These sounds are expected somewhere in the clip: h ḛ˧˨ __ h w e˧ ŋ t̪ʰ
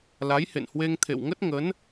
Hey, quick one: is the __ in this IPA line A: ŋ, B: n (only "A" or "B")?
B